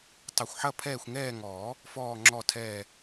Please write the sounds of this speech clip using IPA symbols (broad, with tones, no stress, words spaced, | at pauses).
tˤɘ˨˩xʷħɐ˦˨ pʰɛː˦˨xʷŋɛː˦˨ŋɔː˨˩˦ | fɔː˨˩ŋ͡ǁɔ˨˩tʰɛː˨˩